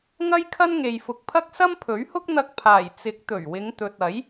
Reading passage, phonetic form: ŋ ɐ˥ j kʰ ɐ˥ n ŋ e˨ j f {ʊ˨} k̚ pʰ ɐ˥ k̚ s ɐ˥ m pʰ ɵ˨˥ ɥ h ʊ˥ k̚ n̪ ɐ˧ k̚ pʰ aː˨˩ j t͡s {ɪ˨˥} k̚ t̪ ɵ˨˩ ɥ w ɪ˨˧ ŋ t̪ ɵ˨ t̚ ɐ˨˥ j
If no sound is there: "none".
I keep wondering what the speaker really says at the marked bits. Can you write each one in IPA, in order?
ʊ˨, ɪ˨˥

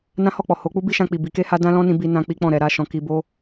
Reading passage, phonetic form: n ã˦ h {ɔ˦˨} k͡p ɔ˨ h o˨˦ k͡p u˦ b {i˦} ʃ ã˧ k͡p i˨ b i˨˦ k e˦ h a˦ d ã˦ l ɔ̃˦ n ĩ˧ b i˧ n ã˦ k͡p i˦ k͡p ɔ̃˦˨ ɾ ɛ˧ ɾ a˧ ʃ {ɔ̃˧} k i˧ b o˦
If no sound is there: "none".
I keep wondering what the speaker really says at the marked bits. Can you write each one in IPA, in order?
ɔ˦˨, i˦, ɔ̃˧

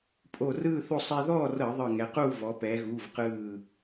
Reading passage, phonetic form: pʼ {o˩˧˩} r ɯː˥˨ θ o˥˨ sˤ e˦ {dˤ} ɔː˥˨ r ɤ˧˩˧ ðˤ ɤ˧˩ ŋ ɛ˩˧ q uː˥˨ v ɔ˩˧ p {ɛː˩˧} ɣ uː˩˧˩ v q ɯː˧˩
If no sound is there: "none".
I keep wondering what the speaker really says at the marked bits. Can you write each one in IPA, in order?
o˧˩, ð, ɛː˩˧

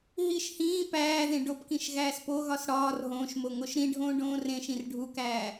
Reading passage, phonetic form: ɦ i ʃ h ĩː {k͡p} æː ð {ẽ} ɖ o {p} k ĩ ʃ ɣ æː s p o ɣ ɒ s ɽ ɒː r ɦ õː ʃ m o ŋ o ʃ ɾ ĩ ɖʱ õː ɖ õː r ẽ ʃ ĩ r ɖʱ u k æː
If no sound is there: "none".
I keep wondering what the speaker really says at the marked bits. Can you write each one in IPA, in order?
p, ẽ, p

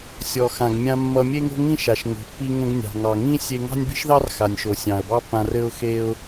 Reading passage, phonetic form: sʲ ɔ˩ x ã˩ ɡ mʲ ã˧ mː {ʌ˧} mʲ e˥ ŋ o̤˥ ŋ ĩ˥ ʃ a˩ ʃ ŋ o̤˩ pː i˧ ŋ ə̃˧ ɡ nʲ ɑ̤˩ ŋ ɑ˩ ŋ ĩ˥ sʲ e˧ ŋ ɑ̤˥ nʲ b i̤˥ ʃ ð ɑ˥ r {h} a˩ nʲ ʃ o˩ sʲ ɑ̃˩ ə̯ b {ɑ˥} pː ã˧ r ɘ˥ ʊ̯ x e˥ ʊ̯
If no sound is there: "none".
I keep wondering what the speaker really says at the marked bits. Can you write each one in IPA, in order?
ʌ˧, x, ɑ˥

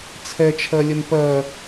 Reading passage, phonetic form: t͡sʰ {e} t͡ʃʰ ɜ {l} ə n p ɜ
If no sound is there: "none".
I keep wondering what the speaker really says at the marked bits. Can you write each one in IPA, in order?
ɛ, lʲ

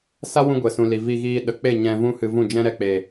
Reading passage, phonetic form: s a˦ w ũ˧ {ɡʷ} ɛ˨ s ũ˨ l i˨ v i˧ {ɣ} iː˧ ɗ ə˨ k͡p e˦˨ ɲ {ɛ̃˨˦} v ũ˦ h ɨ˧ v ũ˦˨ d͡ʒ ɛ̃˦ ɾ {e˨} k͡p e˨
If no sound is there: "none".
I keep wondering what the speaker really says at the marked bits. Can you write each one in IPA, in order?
ɡʷ, ɣ, ɛ̃˧, ɛ˨

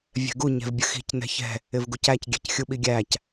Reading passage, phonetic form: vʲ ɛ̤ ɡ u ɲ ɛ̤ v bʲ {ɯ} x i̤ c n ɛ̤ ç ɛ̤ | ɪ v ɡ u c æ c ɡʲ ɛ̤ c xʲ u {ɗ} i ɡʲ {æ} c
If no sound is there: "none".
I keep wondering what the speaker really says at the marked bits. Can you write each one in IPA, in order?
ə, ɓ, æ

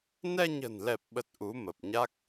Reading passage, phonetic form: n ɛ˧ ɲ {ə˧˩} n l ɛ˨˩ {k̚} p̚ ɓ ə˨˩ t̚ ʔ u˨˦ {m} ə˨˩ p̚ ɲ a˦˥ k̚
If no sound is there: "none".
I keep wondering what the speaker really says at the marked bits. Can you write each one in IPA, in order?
ə̤˨˩, none, m

